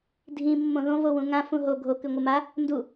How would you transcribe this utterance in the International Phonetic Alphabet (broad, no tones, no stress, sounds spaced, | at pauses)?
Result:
dʱ ĩ mː õ ð õ v o w ũ ŋ ã f ũ ɦ o ɡʱ o k ʉ ŋʷ ɨ m a | n d u